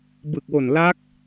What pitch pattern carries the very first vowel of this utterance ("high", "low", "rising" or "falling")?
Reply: low